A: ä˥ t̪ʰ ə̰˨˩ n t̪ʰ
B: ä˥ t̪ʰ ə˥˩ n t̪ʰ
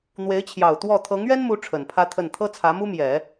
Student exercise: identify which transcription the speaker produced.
B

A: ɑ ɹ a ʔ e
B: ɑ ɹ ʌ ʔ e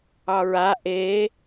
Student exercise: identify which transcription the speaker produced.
A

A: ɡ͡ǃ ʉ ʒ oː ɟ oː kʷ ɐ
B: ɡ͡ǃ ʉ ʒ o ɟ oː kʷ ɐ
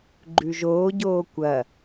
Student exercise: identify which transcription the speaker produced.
A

